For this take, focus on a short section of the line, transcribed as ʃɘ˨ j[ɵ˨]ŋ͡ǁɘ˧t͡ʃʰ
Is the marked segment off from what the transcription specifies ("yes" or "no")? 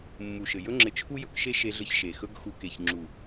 yes